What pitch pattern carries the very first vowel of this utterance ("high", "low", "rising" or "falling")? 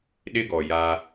high